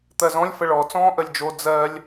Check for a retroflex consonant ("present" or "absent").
present